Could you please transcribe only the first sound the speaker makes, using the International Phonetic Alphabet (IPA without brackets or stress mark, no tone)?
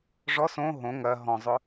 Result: ʐ